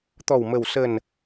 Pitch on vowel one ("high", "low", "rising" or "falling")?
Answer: low